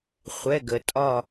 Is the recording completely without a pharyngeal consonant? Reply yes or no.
yes